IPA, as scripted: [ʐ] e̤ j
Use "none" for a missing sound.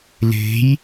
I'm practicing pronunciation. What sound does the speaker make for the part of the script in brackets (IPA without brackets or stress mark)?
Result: l